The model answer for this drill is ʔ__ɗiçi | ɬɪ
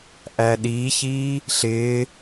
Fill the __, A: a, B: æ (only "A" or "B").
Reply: B